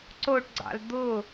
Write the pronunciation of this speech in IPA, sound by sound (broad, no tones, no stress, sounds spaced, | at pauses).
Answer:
ǀ o ʈ ɡ͡ǀ ɑ̰ l d̪ ʊ